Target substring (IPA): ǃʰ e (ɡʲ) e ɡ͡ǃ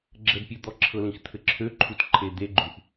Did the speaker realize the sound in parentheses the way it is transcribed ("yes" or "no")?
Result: no